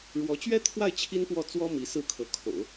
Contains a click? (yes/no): no